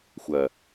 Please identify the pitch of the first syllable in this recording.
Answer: low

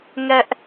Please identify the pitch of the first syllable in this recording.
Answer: high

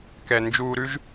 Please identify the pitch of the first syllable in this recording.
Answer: low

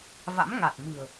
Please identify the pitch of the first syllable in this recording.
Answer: rising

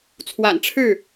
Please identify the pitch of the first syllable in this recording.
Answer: low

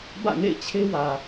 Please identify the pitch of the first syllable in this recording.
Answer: falling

